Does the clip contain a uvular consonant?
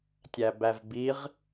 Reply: yes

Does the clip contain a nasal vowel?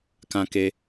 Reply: yes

